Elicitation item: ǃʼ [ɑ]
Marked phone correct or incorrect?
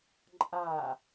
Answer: incorrect